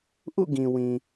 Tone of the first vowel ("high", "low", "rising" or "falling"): falling